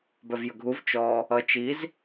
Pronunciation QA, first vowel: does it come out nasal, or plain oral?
oral